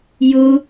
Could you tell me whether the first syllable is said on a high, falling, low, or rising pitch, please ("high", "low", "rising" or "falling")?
high